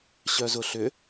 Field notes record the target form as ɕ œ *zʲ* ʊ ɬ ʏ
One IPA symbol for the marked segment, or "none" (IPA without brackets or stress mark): z